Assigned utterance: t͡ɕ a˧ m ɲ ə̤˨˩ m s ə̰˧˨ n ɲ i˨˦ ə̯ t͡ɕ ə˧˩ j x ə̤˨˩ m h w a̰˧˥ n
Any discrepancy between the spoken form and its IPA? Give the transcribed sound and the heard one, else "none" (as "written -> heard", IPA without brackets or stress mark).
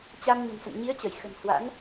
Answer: none